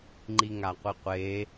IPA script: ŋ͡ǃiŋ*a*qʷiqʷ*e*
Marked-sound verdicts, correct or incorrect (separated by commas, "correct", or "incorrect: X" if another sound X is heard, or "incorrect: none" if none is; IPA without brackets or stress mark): correct, correct